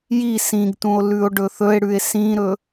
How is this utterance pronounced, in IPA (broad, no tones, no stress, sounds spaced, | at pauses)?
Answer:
j i s ĩ ɡ t ũ o̯ l ʉ o̯ ɖ ɵ θ ɵ e̯ ɽ ʉ e̯ s ĩ ɾ ɵ